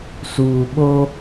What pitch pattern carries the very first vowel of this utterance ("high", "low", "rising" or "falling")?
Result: low